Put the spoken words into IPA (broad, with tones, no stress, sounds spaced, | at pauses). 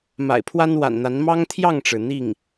m a̰˨˩ ɪ̯ pʰ w a˥ n w a̰˨˩ n n̪ a˧˥ n m ɑ˥ ŋ t̪ʰ j ɑ˥˩ ŋ ʈ͡ʂ ɻ̩˩ n̪ i˥˩ ŋ